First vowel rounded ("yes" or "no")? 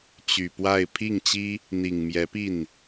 yes